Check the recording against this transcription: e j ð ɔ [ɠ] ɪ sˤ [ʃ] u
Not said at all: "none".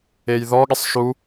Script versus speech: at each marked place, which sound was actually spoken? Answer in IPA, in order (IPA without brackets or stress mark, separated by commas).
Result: ɠ, ʃ